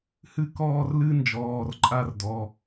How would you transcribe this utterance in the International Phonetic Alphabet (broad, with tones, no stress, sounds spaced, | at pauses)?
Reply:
h ɨ˥˧ k ɔː˥˧ r l ɨ˥ n d͡ʒ ɔː˩˧˩ r ǃʼ a˥˧ r d ɔ˩˧˩